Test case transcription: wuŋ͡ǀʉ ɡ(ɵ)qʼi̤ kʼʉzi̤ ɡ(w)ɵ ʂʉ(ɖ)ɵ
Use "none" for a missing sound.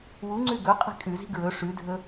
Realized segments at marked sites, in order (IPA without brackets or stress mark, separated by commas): ɵ, ɹ, dʱ